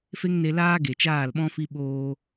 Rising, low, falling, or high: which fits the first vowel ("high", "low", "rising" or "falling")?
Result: high